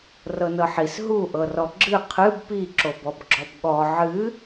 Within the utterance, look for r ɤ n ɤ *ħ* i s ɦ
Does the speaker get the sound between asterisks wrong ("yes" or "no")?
no